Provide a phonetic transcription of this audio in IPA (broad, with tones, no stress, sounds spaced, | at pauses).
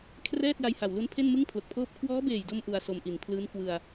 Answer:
kʰ r ɛː˥˩ t̚ j a˧ j h a˨˩ w l u˦˥ n pʰ e˥˩ n m ɯ˥˩ ŋ pʰ l o˨˩ k̚ pʰ oː˥˩ p̚ kʰ w ɔː˦˥ b eː˨˩ j d o˧ m ʔ u˧ a̯ s o˧ m ʔ i˨˩ n pʰ l ɯː˦˥ n k w ɯ˧ a̯